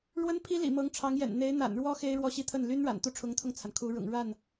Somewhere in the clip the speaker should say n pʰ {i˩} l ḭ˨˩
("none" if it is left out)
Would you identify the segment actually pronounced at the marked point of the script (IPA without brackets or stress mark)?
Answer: i˥